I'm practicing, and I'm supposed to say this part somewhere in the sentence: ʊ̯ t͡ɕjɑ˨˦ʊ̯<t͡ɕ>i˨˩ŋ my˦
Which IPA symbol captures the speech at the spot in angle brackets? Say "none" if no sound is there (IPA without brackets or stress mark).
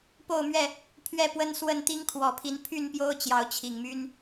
t͡ɕʰ